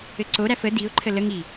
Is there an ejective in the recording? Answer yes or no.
no